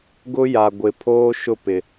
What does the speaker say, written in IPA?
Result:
ɡʊ˦ja˨ɡʷɪ˨ pʰoː˦ʃʊ˦˨ pɪ˨

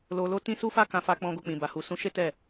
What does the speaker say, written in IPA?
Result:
lo˨lo˨˦ tĩ˦ su˦fa˦ kã˧fa˧k͡pɔ̃˧ ɡo˧k͡pĩ˨ba˨hu˨ sũ˨˦ʃe˦ tɛ˦˨

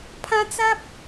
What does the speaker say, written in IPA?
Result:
pʰã˦t͡sa˦p̚

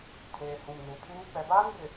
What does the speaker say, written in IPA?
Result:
tʰeː˨hũ˨mnu˨pʰuː˦ k͡pɛ˨baː˦nbɪ˨

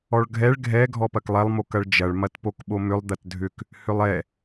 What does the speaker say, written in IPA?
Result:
ɔɭɡʱɛɭ ɡʱɛ ɡʱɔpɐklˠɛlˠ mokɐɭd͡ʒɐɭ mɐtpokɓomʏlˠ d̪ɐtdʱʏk | hʏlˠɛ

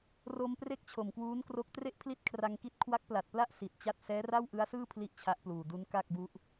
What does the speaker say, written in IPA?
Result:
ro˧m pre˥˩k̚t͡ɕʰo˨˩mkwuː˦˥nkro˦˥k̚ tre˥˩ʔpʰli˥˩t̚kʰra˧ŋki˦˥t̚ kʰwa˦˥k̚pla˨˩t̚pla˥˩ʔ si˨˩t̚t͡ɕa˥˩t̚ sɛː˦˥ra˥˩wʔɯ˦˥a̯sɯː˥˩ pʰli˥˩ʔt͡ɕʰa˦˥ʔpluː˨˩ du˦˥nka˥˩k̚bu˦˥ʔ

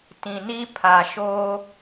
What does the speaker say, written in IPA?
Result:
tĩ˨ni˦ pʰa˨ʃoː˦

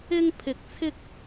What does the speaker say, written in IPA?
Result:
ɪ˥ŋpʰɪ˧k̚t͡sʰɪ˥k̚

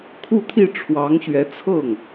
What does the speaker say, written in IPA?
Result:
kʰu˥˧t̪ʰi˥˩ʈ͡ʂʰwɑ˧˥ŋ ɕɥɛ˧˥t͡sʰɤ˥˩ŋ

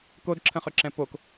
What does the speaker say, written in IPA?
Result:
kodǁʰə̃χʏǁɛ̃ pok

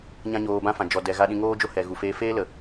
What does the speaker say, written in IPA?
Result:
ɲã˦ɲoː˧bã˦fã˨ d͡ʒɔ˨ dɛ˨ ɣa˧ɗĩ˧ŋoː˦d͡ʒo˦ hɛ˨ ɣu˨feː˧ feː˦lə˨

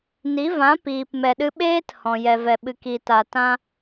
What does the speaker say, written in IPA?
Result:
ni˨˦vã˨˦ piː˨pmɛ˨ɗɨ˧ ɓeː˦t hɔ̃˨jɛ˨vɛ˨ ɓɨ˨ki˨ta˨ tã˧

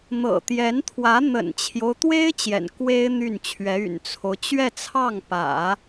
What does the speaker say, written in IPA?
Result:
n̪ɤ̰˨˩t̪jɛ˧˥nt̪ʰwä˧˥ n̪ə̰˨˩nt͡ɕʰjo˦ʊ̯t̪we˥ɪ̯ t͡ɕjɛ̰˨˩nkwe˥ɪ̯ n̪y˥˩nt͡ɕʰɥɛ˧˥ y̰˨˩nt͡sʰo˦ʊ̯ t͡ɕɥɛ˥˧t͡sʰɑ˥˩ŋpä̰˨˩˦

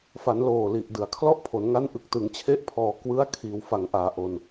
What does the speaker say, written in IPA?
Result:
fa˩˦nloː˨˩li˨˩ʔ dɯ˨˩a̯kʰlɔ˥˩ʔpʰo˩˦n ŋa˦˥n ʔɯ˨˩k̚tɯ˩˦ŋt͡ɕʰe˦˥ʔ pʰɔː˨˩ kwɯ˦˥a̯kʰiː˩˦w fa˩˦ŋʔaː˩˦ ʔo˧n

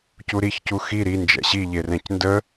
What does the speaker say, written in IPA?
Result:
cuɾiç cuxi ɾi nd͡ʒɛ̰ɕi ʎerɛ̃cndə

